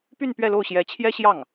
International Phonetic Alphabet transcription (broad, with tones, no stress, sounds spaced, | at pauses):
p y˥˧ n p ɥ ɛ˥˧ l o˥˩ ʊ̯ ɕ j ɛ˧˥ t͡ɕʰ j ɛ˥ ɕ j ɑ˥˩ ŋ